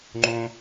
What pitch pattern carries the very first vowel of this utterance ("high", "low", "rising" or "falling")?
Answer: high